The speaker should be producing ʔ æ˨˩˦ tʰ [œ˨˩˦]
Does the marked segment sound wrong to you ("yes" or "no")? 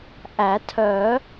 no